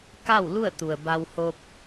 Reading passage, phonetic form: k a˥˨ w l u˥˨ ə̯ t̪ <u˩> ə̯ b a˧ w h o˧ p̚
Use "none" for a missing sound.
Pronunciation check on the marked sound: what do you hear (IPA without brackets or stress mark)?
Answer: u˩